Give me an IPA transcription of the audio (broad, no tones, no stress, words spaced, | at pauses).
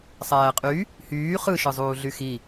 sˤæːqʼy | hyː χɯʃɯzˤuːɮy xi